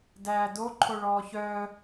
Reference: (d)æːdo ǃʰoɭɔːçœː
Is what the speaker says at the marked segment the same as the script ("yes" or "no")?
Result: yes